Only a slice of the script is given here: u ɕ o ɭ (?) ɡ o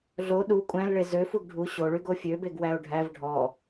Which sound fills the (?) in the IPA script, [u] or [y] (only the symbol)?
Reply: y